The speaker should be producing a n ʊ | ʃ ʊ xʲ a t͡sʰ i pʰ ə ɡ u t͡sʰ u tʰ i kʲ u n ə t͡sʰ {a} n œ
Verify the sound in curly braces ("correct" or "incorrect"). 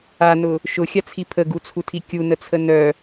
incorrect